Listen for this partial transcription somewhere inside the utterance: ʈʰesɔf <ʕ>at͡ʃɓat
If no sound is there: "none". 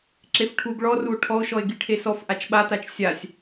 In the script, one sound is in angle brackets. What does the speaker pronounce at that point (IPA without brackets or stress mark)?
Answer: ʔ